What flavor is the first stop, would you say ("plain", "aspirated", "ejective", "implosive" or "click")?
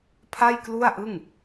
aspirated